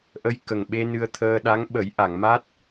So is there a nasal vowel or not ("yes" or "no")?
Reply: no